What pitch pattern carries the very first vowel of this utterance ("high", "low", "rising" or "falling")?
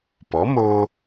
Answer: rising